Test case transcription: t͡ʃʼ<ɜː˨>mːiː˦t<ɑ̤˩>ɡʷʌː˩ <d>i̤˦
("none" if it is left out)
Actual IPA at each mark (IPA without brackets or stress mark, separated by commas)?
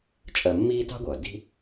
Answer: ɜ˨, ɑ̤˥, d